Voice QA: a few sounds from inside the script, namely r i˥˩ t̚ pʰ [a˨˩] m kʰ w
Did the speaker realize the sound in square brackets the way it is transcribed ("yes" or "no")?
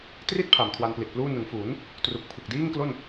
yes